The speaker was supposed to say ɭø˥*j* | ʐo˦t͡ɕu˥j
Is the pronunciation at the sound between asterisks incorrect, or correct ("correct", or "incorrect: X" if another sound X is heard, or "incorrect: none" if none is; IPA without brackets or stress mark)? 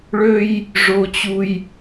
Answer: correct